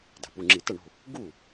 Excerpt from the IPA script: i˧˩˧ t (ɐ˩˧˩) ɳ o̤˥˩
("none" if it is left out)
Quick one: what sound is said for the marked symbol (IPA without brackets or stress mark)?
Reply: ɐ˥˩